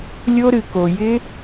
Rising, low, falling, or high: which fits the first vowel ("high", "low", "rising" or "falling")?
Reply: high